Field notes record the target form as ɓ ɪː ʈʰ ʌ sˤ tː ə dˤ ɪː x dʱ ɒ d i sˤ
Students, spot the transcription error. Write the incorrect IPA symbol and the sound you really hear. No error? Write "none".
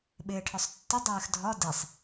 ʌ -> ɒ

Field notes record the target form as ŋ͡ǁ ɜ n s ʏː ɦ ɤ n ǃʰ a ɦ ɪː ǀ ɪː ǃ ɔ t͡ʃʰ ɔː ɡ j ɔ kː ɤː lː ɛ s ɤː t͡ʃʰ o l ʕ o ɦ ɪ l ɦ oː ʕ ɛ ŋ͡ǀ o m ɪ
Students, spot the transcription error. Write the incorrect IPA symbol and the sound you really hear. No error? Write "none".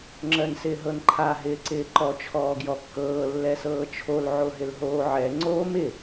ʏː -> ɪː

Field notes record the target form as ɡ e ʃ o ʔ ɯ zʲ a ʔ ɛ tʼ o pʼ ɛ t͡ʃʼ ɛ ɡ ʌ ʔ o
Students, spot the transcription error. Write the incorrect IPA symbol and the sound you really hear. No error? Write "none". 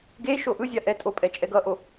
none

